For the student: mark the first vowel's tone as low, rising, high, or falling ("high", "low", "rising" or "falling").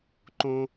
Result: high